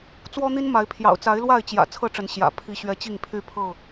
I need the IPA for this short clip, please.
t͡s w ɔ˦ n̪ i˦ n m a˨˦ ɪ̯ pʰ j ɑ̰˨˩ ʊ̯ t͡s a˨˦ ɪ̯ l w a˥˨ ɪ̯ t͡ɕ j ä̰˨˩ t͡sʰ ɤ˥˨ ʈ͡ʂ ə˨˦ n ɕ j ä̰˨˩ pʰ i˨˦ ɕ ɥ ɛ˨˦ t͡ɕ i˥˨ ŋ pʰ y˥˨ pʰ ɤ˥˨

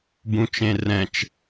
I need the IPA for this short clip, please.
b ũ t͡ʃ ẽ r ɛ̃ t͡ʃ

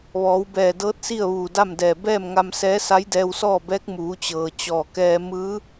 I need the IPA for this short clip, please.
ʋ ɔː˩˧ w b ɛː˧˩ d ɤː˧˥ t̚ s i˥˨ ə̯ ʋ uː˧˩ d a˥˨ m d ɛː˧˩ b ɛː˥˨ m ŋ a˧ m s ɛː˧˥ s a˧˥ j d ɛː˧ w s ɔː˥˨ b ɛː˧˥ k̚ m uː˩˧ t͡ɕ ɤː˩ t͡ɕ ɔː˧˩ k ɛː˧ m ɯː˧˥

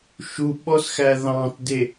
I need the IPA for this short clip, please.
ʃ u ɓ ɔ s x æ ð ɑ̃ t d e

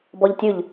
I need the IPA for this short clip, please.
b ɔ ʎ tʲ ʉ ʎ

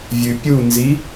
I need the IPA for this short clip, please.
vʲ ʉ pʲ u n z i

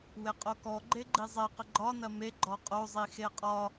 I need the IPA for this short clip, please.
w e qʼ o k ɔ ɡ͡ǃ e ɡ͡ǃ i zˤ e q ə ɡ͡ǃ ɒ n ɐ m e ɡ͡ǃ ɔ qʼ o zˤ i x e qʼ ɒ

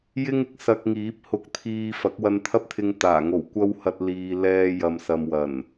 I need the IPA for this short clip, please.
j ɪ˥ ŋ ɪ˨ k̚ s ɐ˧ k̚ ŋ iː˨˥ p̚ h ʊ˧ k̚ t̪ʰ iː˧ f ɐ˨˥ k̚ w ɐ˧ n t̪ʰ ɐ˥ p̚ t̪ʰ ɪ˧ ŋ t̪ aː˨˩ ŋ o˨˩ w kʷ ɐ˥ w h ɐ˧ t̚ l iː˨ l ɛː˧ j ɐ˨ m s ɐ˨ m w ɐ˨˩ n

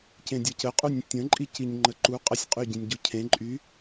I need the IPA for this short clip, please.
c ẽ dʲ ɤ c ə qʼ u nʲ ə̃ tʲ ə̃ ǃʼ i c i ɲ ŋ͡ǃ ə ǃ u qʼ ə sʲ qʼ y ɟ ĩ nʲ ɟ u cʰ ẽ ǃʼ y

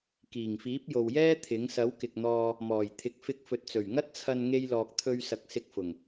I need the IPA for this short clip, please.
k iː˨˩ ŋ f iː˨˥ p̚ j o˨ w j ɛː˥ t̪ʰ ɪ˨˥ ŋ s ɐ˨˥ w k ɪ˨ k̚ n̪ ɔː˧ | m ɔː˨˩ j t̪ʰ ɪ˨˥ k̚ f ɪ˧ k̚ f ɵ˨ t̚ t͡s ɵ˨˩ ɥ ŋ ɐ˥ t̚ t͡sʰ ɐ˧ n ŋ e˥ j l ɔː˧ k̚ t̪ʰ ɵ˧ ɥ s ɐ˨ k̚ s ɪ˧ k̚ f ʊ˨˩ ŋ

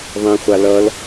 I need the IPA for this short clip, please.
ðˤ ẽ χʷ a l ʌ l

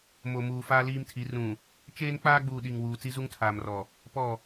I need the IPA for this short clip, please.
m o˨ m uː˨ f aː˦ l iː˦ m tʰ i˨˦ r ũ˨ | t͡ʃ eː˦ n k͡p aː˦ ɡ͡b uː˨ ɗ i˨ ŋ w uː˨ t͡s i˦ z u˦ ŋ tʰ aː˨ m r ɔ˨ | p ɔ˦˨

